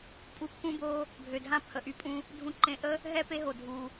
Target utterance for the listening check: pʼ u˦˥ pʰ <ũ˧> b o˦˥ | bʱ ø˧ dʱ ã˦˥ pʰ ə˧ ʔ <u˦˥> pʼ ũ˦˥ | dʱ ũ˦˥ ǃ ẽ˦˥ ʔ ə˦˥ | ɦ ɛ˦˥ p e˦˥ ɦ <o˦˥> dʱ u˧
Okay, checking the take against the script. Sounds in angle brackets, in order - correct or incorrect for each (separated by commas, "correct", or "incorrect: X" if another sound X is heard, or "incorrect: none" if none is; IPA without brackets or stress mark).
incorrect: ũ˦˥, incorrect: y˦˥, incorrect: o˧